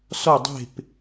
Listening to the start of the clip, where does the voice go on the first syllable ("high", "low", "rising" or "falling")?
falling